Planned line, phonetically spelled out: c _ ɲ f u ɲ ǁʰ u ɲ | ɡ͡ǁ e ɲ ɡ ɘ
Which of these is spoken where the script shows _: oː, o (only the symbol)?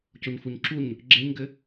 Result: o